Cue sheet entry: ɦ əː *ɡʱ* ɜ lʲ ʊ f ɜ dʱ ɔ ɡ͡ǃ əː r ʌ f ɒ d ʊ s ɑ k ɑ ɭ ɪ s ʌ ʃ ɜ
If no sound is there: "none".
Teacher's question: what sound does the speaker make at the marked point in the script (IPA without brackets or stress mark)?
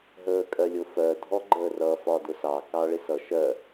kʼ